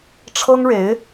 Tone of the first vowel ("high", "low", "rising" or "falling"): high